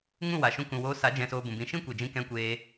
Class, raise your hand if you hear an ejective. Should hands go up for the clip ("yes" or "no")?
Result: no